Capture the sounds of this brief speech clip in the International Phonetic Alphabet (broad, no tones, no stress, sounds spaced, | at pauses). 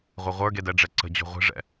ʁʷ e ʁʷ ə˞ ɡ e d ɛ ɖ͡ʐ ɛ ǀ ə̤ d͡ʑ o̤ ʁʷ e̤ ʐ ɛ̰